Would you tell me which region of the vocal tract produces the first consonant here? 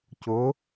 palate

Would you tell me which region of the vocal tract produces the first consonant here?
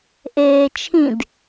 throat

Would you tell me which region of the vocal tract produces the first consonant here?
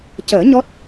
palate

